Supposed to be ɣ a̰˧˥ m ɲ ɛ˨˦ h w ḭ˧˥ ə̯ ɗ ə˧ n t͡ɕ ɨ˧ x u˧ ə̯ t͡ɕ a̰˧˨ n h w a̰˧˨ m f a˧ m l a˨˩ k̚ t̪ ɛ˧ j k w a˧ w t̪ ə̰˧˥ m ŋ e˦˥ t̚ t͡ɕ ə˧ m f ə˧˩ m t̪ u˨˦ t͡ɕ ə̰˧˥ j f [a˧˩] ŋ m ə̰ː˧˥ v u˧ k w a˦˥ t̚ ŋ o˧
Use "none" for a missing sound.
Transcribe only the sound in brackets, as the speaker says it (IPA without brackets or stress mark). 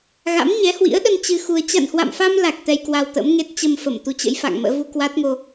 a̰˧˨